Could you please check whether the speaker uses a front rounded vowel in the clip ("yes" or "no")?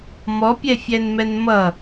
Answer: no